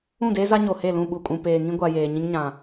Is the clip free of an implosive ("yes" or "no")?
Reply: no